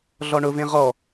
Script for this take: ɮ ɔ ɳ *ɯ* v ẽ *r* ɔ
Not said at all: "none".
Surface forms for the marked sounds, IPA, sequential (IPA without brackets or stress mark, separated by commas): ʊ, ʁ